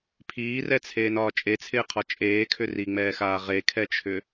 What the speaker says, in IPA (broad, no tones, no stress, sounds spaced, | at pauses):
pʰ iː r ɛ t͡sʰ eː n ɒː t͡ʃʼ e t͡sʰ ɪː qʰ ɒ t͡ʃʼ eː kʰ ʏ r i ŋ͡m ɛː x aː ʁ e kʰ ɛ t͡ʃʰ ʏ